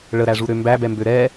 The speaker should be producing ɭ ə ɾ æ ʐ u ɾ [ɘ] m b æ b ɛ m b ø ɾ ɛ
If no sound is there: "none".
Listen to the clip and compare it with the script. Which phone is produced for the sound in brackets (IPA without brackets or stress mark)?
ø